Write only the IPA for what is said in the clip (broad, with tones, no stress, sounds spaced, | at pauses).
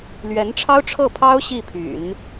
l ɥ ɛ˧˥ n ʈ͡ʂʰ ɑ˥ ʊ̯ ʈ͡ʂʰ ɤ˥˩ pʰ ɑ˥ ʊ̯ ɕ i˥˩ pʰ y̰˨˩˦ n